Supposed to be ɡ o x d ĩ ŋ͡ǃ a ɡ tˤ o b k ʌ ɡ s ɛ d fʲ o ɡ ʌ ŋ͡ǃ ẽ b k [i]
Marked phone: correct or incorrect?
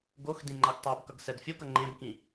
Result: incorrect